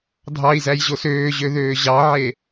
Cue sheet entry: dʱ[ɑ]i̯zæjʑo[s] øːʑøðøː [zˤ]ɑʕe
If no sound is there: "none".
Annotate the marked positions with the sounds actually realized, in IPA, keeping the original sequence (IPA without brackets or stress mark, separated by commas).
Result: ɑ, s, ʑ